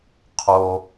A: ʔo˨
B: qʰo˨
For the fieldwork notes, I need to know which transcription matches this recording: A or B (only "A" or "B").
B